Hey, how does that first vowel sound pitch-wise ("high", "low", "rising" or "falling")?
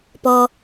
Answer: low